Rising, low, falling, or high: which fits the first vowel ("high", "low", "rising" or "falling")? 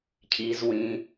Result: low